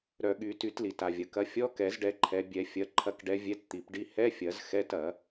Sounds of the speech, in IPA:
ɾ œ˨˩˦ ɠ y˨˩˦ t y˨˩˦ t l i˩ t a˩ vʲ ɐ˩ k ɐ˨˦ fʲ ɔ˧˥˧ k ɛ˨˩˦ z ɖ ɛ˨˦ ǃʰ ɛ˨˦ bʲ ɛ˨˩˦ fʲ ɐ˨˦ ǃʰ ɐ˨˦ k ɖ ɛ˨˦ vʲ ɛ˧˥˧ t t̪ i˨˩˦ p ɖ i˧˥˧ h ɛ˧˥˧ fʲ ɐ˨˩˦ z x ɛ˧˥˧ t ɐ˨˩˦

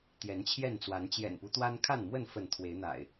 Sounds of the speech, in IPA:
t̪ j ɛ˨˦ n t͡ɕʰ j ɛ˥˨ n t͡s w a˨˦ n t͡ɕ j ɛ̰˨˩ n p u˦ t̪ w a˦ n kʰ a˥˨ n m w ə˥˨ n f ə˥˨ n t̪ʰ w e˨˦ ɪ̯ n̪ a̰˨˩ ɪ̯

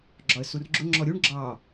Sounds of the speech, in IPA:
ɡ͡ǁ ɒ ə̯ s u r ɡ͡ǁ ʊ ŋ͡ǁ ɔ ɾʲ u ɳ ɡ͡ǁ ɑ

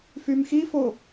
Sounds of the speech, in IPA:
f y m x i f o

